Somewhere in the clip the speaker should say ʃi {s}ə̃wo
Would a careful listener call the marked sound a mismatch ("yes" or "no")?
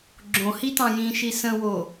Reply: no